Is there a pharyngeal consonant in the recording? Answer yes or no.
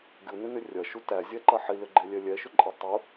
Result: yes